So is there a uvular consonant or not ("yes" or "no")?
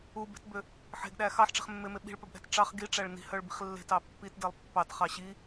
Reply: yes